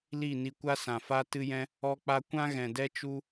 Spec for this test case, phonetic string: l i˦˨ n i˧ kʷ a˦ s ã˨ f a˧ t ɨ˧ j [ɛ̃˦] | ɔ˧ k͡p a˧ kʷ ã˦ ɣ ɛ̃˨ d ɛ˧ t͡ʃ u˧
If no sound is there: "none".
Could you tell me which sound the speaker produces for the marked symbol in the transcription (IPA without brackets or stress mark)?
ɛ̃˧